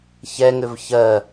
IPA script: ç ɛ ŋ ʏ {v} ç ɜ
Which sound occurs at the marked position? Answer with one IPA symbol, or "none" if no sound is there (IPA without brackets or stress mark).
v